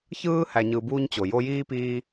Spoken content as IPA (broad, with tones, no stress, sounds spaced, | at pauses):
ç ɯː˦ h æ˧ ɲ ɯ˧ b uː˦ ɲ t͡ɕ o˨ j o˧ j iː˦ p iː˧